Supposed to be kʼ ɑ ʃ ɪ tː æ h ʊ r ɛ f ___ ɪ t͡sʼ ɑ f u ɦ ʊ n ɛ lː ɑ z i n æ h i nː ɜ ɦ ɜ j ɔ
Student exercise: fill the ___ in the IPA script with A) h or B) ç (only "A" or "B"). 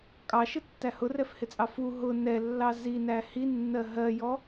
A